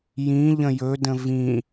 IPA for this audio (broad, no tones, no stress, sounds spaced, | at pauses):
j ĩ ʎ ə̃ j ɵ d ə̃ v ĩ